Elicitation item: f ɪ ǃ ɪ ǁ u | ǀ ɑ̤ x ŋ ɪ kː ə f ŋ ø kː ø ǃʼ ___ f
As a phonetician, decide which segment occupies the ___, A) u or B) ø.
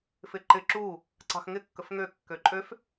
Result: B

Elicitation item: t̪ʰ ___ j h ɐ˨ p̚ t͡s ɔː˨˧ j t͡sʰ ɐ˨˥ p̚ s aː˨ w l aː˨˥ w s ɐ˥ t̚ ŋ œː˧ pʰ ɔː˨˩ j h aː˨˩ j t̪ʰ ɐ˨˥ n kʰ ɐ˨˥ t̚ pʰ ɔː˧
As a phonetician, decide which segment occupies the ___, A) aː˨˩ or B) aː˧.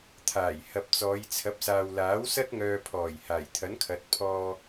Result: A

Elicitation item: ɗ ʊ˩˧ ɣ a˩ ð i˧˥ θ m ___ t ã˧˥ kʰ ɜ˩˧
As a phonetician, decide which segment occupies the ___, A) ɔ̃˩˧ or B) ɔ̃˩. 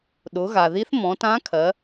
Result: A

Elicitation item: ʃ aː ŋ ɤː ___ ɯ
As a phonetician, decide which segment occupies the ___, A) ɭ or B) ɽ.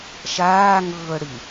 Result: B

